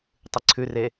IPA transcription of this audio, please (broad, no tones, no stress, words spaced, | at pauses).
tˤɨǀʰʉre